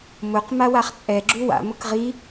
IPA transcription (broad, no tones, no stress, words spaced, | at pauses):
mʊq mawaχt͡sʼɛ ɡ͡ǁuwa̰ mʊkʁi